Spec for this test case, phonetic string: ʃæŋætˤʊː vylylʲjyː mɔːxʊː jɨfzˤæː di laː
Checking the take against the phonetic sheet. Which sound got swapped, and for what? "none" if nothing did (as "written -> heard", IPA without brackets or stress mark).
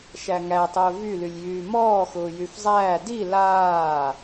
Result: ɨ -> y